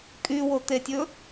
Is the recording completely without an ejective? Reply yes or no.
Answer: no